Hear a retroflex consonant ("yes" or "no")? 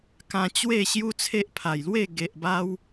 no